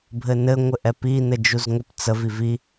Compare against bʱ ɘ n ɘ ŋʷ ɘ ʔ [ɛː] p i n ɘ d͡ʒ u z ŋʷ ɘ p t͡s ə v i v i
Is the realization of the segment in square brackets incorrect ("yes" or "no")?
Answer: yes